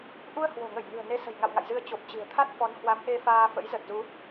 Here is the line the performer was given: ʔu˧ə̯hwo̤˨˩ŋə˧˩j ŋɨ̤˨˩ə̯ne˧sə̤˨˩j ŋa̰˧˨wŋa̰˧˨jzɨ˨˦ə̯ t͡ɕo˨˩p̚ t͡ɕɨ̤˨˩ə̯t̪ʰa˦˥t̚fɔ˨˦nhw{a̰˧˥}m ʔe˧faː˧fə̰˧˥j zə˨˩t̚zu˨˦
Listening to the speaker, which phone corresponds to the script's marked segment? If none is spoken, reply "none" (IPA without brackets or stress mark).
a˨˦